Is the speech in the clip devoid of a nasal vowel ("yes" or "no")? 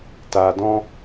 no